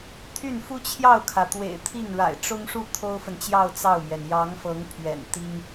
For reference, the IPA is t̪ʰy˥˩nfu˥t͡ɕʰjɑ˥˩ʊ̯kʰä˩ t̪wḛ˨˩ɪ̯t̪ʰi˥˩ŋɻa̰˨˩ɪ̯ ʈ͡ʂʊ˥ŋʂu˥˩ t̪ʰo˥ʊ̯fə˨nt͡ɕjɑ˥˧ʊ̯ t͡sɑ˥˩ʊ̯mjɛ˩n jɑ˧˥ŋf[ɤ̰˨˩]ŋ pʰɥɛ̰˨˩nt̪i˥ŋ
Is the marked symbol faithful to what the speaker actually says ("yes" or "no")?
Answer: no